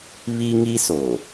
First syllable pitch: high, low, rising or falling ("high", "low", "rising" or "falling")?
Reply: high